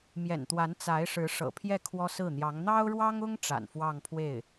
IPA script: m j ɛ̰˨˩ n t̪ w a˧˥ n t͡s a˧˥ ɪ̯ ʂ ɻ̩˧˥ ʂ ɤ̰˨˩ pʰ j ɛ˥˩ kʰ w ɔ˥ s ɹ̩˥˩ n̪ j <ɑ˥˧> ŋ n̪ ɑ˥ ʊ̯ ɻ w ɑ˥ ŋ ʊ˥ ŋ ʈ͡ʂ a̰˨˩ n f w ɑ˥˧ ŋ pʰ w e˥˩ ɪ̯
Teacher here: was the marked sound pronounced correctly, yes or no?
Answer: no